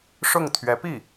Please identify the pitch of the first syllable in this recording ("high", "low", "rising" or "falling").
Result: falling